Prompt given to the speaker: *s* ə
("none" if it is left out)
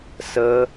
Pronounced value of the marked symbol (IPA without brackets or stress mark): s